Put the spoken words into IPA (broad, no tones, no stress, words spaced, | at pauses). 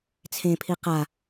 t͡sʰẽpʰi qa